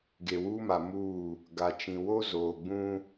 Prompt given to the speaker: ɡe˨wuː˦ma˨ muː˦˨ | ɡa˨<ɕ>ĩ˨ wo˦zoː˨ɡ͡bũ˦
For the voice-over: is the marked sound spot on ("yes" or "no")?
no